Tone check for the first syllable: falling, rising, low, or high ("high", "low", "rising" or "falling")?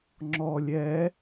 low